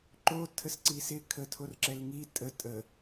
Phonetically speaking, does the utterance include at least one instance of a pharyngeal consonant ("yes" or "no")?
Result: no